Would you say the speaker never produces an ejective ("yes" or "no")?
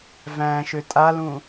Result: no